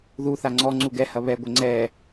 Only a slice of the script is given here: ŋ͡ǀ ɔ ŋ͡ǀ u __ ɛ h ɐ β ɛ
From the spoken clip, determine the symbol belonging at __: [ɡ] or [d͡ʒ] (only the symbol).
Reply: ɡ